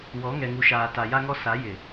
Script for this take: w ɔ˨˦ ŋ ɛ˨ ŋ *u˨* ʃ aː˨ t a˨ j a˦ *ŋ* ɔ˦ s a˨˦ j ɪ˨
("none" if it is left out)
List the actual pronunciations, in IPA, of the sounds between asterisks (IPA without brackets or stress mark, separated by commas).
u˨, ŋ